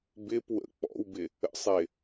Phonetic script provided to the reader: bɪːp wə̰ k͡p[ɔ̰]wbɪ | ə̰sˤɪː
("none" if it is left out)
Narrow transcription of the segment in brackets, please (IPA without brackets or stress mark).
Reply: ɔ̰